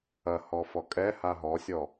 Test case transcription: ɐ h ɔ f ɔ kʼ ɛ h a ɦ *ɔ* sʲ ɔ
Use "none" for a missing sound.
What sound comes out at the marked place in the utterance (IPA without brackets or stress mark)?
ɔ